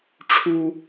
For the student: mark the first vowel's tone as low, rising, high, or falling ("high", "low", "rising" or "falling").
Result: high